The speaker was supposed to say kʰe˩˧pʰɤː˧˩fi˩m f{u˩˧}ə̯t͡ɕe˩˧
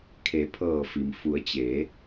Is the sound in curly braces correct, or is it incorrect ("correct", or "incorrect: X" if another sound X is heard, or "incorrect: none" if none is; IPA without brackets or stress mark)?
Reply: correct